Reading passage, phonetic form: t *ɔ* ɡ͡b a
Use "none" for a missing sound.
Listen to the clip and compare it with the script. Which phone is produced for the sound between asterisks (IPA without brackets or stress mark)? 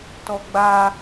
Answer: ɔ